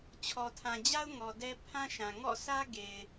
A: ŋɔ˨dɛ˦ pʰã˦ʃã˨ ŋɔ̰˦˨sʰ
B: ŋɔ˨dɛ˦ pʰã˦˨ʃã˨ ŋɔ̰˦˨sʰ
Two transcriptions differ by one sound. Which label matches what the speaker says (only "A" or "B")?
A